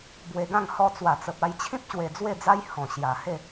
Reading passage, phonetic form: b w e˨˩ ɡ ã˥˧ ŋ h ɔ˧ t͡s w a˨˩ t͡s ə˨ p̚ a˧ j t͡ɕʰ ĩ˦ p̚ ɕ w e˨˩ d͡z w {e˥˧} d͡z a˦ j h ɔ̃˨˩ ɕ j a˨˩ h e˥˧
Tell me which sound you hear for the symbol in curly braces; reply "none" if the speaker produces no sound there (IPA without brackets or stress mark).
e˥˧